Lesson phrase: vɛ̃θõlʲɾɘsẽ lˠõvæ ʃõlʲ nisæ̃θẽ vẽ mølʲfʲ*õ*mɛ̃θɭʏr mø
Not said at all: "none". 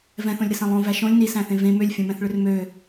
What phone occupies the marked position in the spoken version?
õ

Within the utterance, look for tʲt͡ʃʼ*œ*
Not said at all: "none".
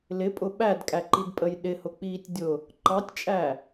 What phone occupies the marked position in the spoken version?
æ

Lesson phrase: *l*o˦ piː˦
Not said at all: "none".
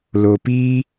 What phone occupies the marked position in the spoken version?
l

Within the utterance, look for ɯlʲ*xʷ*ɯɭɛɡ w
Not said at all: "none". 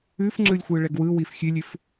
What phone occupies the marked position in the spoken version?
xʷ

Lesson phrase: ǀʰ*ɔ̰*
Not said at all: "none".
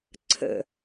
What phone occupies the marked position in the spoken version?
ə̰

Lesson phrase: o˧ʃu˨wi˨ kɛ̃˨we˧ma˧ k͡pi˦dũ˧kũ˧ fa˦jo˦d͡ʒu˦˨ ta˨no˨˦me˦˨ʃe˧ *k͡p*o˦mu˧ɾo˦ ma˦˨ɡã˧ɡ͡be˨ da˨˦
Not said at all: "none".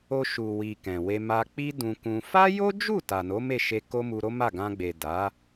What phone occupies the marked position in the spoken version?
k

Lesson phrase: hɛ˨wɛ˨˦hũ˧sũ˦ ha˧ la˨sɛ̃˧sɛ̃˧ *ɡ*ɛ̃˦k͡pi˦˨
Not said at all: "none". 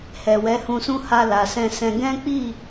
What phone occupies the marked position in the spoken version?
ɡ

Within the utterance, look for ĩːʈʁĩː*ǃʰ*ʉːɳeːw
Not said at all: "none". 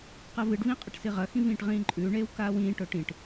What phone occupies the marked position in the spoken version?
ǃʼ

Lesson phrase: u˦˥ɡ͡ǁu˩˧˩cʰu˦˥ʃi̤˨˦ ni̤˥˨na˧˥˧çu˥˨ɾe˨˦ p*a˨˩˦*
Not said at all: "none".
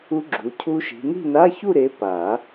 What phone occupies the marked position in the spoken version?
a˨˩˦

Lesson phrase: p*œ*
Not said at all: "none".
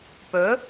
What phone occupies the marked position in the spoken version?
œ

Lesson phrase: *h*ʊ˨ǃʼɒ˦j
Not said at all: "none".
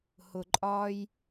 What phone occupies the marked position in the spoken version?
h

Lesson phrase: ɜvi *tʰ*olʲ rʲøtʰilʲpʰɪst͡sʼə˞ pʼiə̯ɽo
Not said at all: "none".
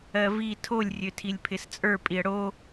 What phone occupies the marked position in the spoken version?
tʰ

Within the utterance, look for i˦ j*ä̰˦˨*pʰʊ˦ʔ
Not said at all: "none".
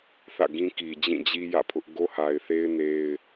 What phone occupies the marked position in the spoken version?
ä̰˦˨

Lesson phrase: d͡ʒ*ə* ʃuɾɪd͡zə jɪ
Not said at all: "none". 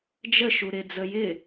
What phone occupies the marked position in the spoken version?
ə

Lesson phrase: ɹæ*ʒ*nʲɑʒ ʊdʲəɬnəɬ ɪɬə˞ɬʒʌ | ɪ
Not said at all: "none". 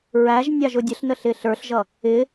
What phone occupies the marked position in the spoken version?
ʒ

